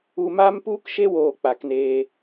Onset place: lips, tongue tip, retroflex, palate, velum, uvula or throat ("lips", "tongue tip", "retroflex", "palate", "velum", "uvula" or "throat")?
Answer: lips